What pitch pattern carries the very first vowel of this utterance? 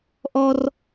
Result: high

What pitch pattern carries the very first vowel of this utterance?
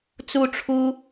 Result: high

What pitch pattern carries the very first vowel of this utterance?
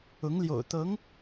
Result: rising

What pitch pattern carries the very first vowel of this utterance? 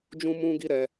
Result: high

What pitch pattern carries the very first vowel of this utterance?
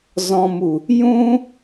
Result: low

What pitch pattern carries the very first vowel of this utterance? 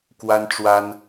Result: high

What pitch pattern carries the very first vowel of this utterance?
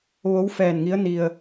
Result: rising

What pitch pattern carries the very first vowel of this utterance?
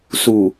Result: low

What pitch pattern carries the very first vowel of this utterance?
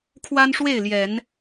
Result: high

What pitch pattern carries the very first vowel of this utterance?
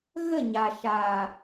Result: falling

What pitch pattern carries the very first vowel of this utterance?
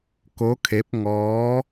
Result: rising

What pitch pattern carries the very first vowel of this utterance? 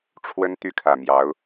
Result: high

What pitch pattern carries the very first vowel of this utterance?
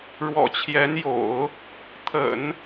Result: low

